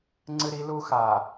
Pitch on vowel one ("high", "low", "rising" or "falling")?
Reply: high